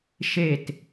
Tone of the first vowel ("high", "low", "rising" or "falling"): falling